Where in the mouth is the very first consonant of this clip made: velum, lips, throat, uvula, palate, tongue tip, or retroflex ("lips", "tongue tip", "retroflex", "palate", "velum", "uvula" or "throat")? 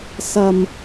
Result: tongue tip